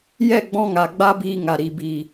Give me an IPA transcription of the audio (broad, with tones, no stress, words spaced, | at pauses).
jɛ˦˨ɡ͡bɔ̃˧ŋa˨ ɡ͡ba˦biː˧ŋa˨ ɾi˨biː˨